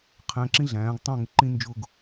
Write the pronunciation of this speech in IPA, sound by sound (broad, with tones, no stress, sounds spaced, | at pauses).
qʰ æ̃˧ ǁ ĩ˥ ɮ æ̃ː˩˧ ɡ tˤ æ̃˥˧ ŋ ɪ˩˧ ǃ ĩ˥˧ n d͡ʒ ʊː˥˧ ɡ